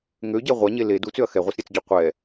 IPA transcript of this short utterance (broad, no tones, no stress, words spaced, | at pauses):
ŋøɟɛ ʁʷaɲe le dut͡søɐ̯ xɛʁʷasɾʲɛt͡sɟo qʷɛ